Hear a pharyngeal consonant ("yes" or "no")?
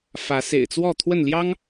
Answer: no